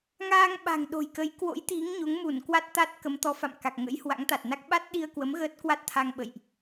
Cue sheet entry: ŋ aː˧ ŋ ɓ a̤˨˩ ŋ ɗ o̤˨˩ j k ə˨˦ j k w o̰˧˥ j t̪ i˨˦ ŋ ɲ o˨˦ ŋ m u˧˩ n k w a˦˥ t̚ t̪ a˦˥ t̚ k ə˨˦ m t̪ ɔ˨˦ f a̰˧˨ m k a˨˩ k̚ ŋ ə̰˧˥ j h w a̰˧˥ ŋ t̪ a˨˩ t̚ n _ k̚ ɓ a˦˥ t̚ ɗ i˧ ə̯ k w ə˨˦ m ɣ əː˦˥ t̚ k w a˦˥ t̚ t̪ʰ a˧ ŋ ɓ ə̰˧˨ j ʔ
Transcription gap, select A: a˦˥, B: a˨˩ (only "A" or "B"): A